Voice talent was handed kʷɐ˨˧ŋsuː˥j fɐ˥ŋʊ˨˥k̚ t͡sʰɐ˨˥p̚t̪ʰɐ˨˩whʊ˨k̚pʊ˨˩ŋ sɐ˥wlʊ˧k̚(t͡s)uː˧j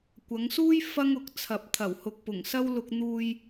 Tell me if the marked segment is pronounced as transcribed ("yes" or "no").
no